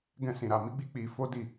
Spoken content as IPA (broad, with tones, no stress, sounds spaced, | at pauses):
ɡ ɛ̃˦ s ĩ˧ ɾ a˧ m i˦ ɡ͡b i˦ k͡p i˧ f o˦ d i˦˨